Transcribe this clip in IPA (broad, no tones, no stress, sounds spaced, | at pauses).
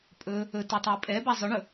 pʼ ɵ | ɵ t u tˤ ɵ i̯ pʼ ɛ b a zˤ ɵ ɳ ɵ